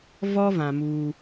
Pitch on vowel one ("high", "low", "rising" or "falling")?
high